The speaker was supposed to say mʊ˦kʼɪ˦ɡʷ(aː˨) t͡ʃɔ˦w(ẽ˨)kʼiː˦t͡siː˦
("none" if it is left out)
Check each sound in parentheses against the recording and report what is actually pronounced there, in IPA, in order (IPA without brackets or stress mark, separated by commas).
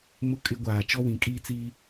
aː˨, ĩ˨